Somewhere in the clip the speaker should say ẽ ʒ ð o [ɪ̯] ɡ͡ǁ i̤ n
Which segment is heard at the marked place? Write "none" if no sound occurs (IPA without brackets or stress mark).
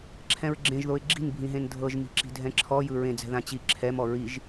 ɪ̯